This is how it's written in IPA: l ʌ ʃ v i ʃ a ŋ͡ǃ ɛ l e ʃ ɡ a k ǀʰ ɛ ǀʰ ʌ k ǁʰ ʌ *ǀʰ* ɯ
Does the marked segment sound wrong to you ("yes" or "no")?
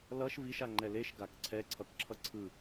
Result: no